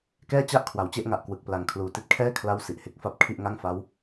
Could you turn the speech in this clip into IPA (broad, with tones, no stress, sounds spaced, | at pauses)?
k ɛː˥˩ t͡ɕ a˥˩ ʔ kʰ w a˩˦ w t͡ɕ e˥˩ ʔ ŋ a˨˩ ʔ k w ɯ˨˩ k̚ p l a˨˩ ŋ kʰ l uː˨˩ t i˦˥ t̚ kʰ ɛː˥˩ kʰ l a˦˥ w s i˨˩ ʔ h e˦˥ k̚ f a˥˩ p̚ kʰ i˥˩ ʔ ŋ a˥˩ ŋ f a˦˥ w